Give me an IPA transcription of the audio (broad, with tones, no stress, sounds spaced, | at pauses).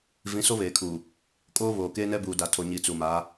v ĩ˨˦ s o˦ β eː˨ kʰ uː˨ | kʼ oː˦ β oː˨ k eː˦ n ɛ˦ b uː˨ d a˨ tʰ o˨ ɲ i˨ t͡s u˨ m aː˨˦